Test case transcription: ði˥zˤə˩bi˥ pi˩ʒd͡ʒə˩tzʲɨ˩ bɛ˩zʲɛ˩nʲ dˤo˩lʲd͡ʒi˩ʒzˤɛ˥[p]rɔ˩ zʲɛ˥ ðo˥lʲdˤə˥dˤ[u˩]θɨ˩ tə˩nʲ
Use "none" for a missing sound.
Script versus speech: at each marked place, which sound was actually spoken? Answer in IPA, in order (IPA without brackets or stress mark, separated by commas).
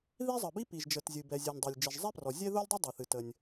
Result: p, o˩